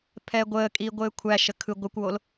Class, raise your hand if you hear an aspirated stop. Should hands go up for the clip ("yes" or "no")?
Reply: yes